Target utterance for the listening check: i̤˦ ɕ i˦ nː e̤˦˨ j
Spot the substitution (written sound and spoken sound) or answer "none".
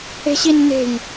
i̤˦ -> e̤˦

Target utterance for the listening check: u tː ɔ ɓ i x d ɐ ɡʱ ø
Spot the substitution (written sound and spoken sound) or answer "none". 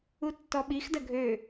none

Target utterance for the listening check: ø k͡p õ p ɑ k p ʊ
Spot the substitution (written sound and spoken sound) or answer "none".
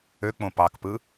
ʊ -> ɯ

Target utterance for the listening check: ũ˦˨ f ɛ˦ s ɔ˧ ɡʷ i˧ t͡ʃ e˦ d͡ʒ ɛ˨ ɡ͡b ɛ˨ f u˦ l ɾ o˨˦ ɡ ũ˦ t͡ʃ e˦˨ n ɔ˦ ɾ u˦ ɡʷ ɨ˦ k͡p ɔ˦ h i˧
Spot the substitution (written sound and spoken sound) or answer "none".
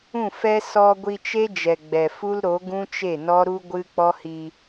none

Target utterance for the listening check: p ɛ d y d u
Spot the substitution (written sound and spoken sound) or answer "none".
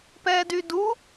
none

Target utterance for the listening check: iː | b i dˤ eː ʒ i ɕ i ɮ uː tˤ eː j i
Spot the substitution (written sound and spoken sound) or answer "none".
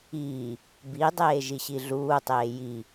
none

